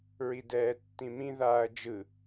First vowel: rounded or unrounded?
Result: unrounded